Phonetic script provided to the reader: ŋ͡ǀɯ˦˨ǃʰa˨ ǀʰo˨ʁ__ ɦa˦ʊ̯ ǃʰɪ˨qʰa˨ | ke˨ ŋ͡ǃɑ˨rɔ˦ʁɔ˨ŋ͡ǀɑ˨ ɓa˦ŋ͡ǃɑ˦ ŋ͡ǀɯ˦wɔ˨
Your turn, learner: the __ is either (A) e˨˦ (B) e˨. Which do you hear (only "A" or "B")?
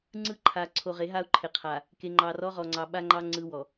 A